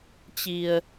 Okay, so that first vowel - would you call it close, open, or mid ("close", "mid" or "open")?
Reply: close